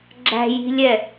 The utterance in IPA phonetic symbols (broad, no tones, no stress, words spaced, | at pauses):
ɡ͡ǁæ̤ji̤lʲɛ